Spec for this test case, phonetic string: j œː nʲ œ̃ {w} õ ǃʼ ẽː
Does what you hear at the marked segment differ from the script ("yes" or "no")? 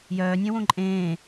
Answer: no